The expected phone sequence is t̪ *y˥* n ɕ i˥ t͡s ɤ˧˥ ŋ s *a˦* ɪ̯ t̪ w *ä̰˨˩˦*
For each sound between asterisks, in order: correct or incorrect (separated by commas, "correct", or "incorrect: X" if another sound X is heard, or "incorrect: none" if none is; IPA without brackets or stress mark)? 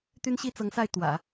correct, incorrect: a˥˩, correct